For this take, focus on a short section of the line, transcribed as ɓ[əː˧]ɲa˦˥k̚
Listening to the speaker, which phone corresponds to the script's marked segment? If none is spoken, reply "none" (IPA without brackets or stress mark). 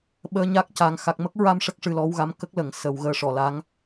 əː˧